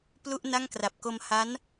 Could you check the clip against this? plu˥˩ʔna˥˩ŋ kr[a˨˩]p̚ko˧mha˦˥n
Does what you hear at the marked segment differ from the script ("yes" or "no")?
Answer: no